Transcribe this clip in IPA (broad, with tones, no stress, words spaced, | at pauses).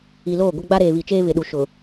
i˨loː˦˨ ɡʷɪ˦ɡ͡ba˦ ɾeː˨βi˨t͡ʃeː˦ βɪ˨ɗu˨ʃʊ˨